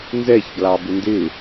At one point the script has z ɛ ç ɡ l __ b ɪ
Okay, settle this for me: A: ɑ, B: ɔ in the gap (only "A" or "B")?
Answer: A